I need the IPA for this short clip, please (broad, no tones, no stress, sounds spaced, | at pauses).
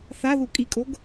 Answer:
θ a ð u kʼ i kʼ o ɡ